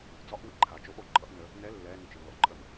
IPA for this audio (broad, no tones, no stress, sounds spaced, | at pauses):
d͡z ɒ ʔ w ḭ ǃʰ a t͡ʃ o ʔ o ǃʼ ʌ ʔ n ə | n ɛ lː ɛ n ʏ t͡ʃ i lː ɔ̰ ǃʼ ə m